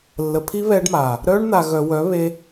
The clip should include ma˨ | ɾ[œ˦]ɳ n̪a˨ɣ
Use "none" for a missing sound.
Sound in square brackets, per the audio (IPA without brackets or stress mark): œ˦